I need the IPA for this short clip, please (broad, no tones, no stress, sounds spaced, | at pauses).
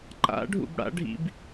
ǃ a̰ ɖʱ ṵ b ɽ a̰ ɖʱ ḭ b